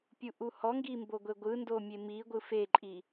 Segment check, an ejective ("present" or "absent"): present